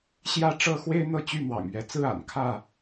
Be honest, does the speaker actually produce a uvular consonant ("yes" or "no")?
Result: no